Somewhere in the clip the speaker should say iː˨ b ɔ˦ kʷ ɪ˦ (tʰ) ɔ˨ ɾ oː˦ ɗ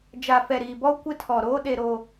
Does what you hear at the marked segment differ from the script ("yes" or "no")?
no